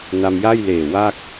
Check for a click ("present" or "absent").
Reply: absent